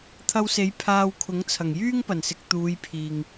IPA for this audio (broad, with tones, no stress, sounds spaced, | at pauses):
t̪ʰ ɐ˧ w s e˨˥ j pʰ aː˧ w kʰ ʊ˨˥ ŋ t͡sʰ ɐ˨˩ ŋ j yː˥ ŋ p ɐ˨˩ n s ɪ˨ k̚ t̪ uː˨˧ j pʰ iː˨ ŋ